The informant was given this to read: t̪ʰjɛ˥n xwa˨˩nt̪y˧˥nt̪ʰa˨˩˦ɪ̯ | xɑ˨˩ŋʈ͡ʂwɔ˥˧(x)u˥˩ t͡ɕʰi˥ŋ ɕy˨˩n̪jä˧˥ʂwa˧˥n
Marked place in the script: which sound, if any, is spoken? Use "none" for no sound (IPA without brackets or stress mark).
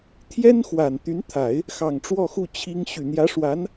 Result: x